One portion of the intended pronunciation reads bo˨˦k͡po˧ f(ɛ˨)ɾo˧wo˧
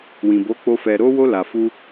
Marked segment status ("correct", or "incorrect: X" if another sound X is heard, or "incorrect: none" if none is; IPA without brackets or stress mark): correct